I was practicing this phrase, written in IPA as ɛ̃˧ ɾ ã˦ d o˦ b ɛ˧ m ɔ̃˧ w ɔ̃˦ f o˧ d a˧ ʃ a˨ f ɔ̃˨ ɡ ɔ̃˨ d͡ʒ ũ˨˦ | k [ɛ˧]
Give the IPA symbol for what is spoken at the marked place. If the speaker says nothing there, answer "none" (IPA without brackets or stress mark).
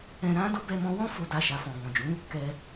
ɛ˧